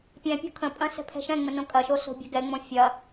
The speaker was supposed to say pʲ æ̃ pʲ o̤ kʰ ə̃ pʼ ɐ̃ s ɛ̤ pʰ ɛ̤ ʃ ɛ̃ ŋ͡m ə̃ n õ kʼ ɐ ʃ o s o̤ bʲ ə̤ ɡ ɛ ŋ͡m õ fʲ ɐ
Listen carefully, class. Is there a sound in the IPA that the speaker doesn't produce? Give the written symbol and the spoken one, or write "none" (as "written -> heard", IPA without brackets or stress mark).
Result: æ̃ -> ɛ̃